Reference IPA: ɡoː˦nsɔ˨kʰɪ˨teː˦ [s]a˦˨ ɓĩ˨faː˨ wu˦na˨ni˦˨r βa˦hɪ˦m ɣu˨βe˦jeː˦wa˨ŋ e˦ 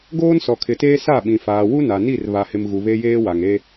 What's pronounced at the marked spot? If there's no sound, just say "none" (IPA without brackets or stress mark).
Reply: s